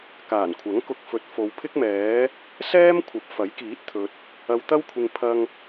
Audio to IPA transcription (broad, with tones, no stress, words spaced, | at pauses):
kaː˨˩nkʷʰɐ˨˥ŋ kʊ˧k̚ fɵ˨t̚fo˨˧wpʰɪ˥k̚mɛː˨˥ | sɛː˥mkʷʰɐ˨p̚ fɐ˨˥jkiː˨˥t̚t̪ʰɵ˨t̚ | ɐ˧wt̪ɐ˥wkʷʰɪ˧ŋ pʰɐ˧ŋ